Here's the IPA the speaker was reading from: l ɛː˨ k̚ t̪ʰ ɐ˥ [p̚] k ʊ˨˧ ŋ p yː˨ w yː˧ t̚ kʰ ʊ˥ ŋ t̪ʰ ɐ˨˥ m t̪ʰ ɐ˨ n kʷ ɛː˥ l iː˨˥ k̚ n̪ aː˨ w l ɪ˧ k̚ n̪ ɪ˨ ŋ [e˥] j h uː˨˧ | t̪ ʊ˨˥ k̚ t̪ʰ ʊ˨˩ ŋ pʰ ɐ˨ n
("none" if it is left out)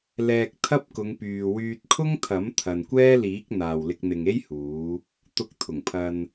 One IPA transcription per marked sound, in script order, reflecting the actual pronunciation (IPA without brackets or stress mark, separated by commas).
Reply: p̚, e˥